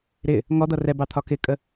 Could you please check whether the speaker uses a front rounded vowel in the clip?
no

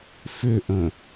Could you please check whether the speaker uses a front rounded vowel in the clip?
yes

